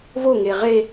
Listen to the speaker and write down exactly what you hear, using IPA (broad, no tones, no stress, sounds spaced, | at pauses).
v o ŋ e ʁ e